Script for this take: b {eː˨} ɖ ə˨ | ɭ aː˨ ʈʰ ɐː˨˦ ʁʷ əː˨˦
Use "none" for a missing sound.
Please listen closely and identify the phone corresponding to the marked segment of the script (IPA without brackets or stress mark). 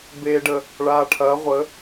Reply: eː˨